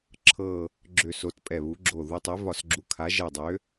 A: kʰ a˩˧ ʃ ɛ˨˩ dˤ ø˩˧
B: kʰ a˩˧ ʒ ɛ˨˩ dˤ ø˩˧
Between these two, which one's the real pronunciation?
B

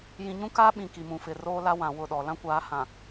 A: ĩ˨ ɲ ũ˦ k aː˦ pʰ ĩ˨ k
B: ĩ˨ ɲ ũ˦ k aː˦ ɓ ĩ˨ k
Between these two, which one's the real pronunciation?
B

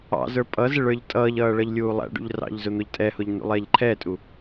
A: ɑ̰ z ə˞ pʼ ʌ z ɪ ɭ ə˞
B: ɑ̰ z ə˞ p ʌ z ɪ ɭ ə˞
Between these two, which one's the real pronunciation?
A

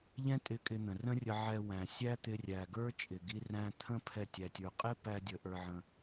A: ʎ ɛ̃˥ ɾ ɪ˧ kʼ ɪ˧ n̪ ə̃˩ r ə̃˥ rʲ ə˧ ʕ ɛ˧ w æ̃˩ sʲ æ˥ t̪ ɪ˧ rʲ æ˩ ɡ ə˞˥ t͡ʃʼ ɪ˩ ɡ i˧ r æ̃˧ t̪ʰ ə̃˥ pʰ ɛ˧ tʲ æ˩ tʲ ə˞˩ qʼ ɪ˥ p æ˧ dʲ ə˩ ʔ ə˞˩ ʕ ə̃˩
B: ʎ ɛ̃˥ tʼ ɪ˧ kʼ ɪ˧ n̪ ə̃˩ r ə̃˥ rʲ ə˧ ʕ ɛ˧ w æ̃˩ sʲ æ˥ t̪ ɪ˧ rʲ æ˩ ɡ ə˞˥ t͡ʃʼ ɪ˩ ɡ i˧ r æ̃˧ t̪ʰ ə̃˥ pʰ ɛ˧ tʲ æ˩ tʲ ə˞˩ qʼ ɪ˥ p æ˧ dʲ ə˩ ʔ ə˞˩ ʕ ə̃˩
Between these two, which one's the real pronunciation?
B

